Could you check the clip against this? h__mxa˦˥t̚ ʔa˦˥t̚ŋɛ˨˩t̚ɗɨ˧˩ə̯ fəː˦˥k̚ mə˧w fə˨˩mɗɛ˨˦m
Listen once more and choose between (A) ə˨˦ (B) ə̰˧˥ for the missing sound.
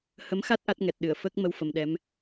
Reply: A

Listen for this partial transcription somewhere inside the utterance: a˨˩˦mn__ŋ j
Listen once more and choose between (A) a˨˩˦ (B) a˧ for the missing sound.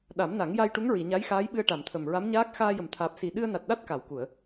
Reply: A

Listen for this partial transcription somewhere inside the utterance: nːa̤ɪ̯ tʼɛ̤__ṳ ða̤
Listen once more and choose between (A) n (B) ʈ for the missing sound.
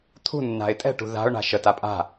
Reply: B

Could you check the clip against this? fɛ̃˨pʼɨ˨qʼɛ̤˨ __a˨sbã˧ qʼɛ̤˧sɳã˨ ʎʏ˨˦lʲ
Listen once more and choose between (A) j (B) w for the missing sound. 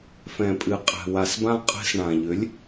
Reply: B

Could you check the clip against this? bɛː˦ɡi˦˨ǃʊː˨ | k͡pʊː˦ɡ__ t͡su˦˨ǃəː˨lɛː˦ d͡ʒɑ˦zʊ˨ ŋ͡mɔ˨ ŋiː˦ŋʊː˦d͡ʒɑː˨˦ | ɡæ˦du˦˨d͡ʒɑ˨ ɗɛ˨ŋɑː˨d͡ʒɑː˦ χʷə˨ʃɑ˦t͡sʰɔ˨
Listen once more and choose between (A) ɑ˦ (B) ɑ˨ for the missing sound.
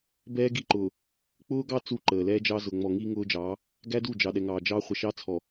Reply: A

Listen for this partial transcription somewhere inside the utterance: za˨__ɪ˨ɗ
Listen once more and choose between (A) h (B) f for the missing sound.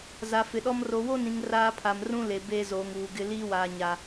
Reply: B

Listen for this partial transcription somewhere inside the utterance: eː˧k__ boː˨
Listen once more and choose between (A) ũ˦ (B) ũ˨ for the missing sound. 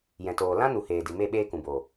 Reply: B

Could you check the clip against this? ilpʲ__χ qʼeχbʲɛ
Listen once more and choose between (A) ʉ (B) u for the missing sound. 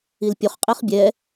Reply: B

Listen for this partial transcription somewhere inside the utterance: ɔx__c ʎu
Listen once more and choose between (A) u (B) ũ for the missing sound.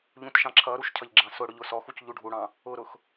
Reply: A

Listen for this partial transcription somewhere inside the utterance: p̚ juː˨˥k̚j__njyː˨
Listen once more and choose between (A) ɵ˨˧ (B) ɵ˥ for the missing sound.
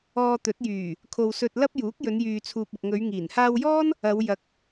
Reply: A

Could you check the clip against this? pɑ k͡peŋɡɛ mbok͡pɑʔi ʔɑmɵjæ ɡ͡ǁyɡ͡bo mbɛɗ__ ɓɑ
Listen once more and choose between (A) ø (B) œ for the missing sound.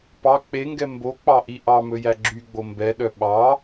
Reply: B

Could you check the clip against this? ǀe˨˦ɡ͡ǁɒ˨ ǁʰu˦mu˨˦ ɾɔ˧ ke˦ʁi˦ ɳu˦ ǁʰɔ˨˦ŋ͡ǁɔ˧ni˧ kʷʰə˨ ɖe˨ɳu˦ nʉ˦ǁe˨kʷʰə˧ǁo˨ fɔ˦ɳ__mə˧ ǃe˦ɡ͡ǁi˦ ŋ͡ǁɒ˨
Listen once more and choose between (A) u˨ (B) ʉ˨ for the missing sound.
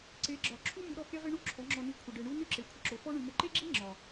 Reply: B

